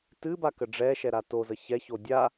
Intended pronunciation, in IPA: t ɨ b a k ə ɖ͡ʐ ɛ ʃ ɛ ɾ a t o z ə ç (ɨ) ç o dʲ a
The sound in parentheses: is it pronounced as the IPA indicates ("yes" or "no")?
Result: no